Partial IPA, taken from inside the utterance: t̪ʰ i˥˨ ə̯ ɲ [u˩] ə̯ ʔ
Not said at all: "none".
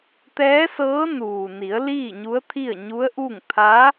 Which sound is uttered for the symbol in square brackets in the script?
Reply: u˧˥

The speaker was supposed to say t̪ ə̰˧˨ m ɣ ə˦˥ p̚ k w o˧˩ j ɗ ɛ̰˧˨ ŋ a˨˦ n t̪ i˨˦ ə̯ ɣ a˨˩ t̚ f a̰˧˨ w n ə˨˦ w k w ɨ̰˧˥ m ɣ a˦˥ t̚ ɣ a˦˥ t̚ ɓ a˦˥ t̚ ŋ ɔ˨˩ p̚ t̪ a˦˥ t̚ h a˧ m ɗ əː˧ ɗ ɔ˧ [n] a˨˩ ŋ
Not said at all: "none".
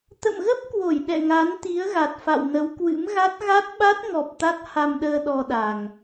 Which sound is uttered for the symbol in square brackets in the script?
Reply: ɗ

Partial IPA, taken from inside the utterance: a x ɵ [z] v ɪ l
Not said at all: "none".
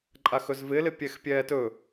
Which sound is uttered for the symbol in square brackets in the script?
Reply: z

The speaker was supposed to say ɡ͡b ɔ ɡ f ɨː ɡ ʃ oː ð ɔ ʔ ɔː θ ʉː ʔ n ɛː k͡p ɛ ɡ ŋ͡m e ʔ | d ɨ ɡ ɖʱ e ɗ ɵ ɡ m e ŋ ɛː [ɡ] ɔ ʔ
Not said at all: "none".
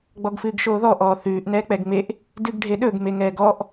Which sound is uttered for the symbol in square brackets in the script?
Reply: ɡ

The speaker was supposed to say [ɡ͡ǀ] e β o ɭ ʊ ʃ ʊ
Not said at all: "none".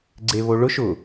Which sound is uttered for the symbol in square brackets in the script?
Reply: ɡ͡ǀ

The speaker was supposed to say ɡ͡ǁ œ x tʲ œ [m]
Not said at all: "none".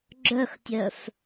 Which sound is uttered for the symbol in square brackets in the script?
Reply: f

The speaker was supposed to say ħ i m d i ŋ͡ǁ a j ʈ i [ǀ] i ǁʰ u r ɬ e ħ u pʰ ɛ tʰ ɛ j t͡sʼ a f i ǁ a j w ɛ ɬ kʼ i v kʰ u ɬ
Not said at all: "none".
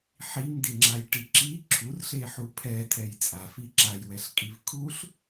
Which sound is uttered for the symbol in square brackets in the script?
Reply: ǁ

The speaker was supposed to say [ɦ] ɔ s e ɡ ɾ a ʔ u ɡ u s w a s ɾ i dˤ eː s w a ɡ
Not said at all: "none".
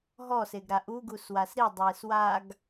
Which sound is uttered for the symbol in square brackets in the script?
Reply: ɦ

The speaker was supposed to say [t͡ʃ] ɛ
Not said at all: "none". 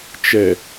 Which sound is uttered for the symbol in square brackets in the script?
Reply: t͡ʃ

